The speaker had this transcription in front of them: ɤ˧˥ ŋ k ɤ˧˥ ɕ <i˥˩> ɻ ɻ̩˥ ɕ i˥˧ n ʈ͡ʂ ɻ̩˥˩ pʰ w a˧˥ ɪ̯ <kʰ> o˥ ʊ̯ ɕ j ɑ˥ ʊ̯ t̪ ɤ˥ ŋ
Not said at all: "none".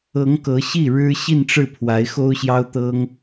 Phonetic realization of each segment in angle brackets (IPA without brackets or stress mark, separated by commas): i˥˩, x